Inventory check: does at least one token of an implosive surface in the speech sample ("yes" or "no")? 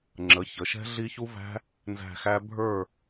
no